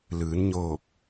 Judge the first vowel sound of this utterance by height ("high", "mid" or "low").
high